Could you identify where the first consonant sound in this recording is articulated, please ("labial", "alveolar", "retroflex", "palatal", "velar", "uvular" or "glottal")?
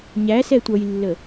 palatal